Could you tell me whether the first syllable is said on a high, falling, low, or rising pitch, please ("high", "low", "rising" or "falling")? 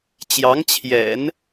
rising